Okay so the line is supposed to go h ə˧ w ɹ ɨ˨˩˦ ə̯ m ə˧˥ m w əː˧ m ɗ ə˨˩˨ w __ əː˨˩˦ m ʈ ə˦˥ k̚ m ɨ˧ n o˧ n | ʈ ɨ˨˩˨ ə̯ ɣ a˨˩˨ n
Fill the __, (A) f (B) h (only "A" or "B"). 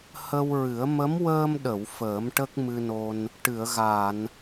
A